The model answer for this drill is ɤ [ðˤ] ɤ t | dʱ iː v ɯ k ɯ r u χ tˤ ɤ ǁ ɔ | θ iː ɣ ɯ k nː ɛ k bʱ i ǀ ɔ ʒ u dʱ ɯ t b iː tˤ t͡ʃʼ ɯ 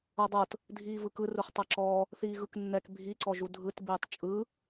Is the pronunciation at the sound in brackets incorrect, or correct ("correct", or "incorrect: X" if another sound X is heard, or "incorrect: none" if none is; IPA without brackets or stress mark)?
incorrect: dˤ